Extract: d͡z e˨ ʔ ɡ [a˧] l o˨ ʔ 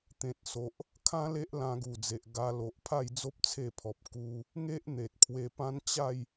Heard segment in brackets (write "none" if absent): a˧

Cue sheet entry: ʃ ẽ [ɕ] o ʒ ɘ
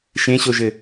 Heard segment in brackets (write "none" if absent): ɕ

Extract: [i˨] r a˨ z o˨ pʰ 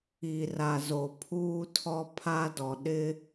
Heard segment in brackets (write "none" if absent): i˨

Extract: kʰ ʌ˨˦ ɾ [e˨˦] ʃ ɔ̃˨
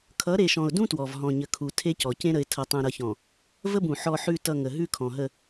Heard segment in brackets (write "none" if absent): e˨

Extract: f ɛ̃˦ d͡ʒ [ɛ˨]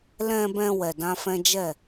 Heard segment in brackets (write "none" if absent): ɛ˦˨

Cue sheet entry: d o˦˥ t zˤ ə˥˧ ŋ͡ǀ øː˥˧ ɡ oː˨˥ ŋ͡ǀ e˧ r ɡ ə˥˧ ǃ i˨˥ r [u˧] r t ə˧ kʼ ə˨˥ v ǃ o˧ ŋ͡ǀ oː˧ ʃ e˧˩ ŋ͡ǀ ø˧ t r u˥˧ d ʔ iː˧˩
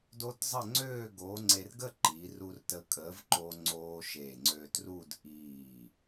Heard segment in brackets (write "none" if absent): u˧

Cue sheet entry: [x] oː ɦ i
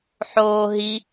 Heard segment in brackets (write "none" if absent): ħ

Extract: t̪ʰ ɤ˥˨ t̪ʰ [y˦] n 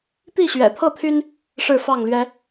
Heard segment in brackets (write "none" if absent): y˦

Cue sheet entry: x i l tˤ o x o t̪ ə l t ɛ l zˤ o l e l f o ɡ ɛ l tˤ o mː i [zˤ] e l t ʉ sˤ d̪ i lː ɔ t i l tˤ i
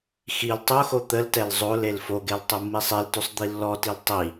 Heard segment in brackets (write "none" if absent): sˤ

